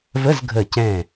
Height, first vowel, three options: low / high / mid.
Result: mid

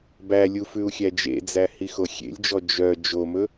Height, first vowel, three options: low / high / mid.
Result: low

